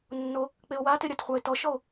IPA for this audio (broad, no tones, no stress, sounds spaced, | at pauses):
nː o | k͡p e o̯ w a t e ɾʲ a t χʷ a e̯ t ɔ ʃ ɔ o̯